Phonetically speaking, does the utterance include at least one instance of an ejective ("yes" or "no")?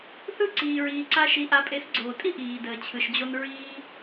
yes